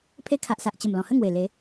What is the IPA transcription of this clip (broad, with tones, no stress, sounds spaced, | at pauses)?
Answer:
pʰ e˧ kʰ a˨ ʔ s a˨ ʔ t͡ɕ ə˨˩ m l ɔ̃˨˩ h ə˥˧ ŋ w e˨˩ l e˨˦